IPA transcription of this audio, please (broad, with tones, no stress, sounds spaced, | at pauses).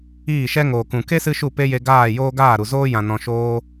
iː˦˨ ʃ ɛ˦ ŋ oː˨ k ũ˨ k e˦ s ɨ˧ ʃ u˦˨ p e˦ j e˧ ɡ aː˦˨ j oː˦ ɡ aː˦˨ ɾ u˨ z oː˦ j ã˨ n ɔ̃˨ ʃ oː˧